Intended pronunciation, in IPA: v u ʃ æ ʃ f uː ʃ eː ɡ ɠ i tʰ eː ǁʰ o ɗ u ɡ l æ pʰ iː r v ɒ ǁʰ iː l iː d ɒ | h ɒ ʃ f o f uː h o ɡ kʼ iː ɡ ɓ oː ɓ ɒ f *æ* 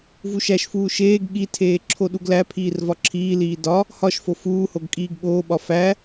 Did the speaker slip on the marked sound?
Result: no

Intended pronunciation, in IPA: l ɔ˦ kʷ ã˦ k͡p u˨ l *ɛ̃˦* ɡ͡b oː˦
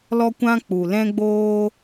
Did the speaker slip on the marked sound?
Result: no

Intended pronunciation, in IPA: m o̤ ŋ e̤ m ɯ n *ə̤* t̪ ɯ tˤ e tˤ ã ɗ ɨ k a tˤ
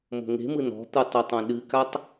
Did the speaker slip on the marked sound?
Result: yes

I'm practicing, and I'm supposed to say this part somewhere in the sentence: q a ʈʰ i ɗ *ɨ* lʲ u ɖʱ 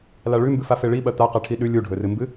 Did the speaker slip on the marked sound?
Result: yes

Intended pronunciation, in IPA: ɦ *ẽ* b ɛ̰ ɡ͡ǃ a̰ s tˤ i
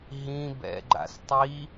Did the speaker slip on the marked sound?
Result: yes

